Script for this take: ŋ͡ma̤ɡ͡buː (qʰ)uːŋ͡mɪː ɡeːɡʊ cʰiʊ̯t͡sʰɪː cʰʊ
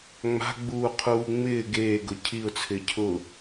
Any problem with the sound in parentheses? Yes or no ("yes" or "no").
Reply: no